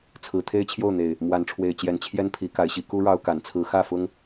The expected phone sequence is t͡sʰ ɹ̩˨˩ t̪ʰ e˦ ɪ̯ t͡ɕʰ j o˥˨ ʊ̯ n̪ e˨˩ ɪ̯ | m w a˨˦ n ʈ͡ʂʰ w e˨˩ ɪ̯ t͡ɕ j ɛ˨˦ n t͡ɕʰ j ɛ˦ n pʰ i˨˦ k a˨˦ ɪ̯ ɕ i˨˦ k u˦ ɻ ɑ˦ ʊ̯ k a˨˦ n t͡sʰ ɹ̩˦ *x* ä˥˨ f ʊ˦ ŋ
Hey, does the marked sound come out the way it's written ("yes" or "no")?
yes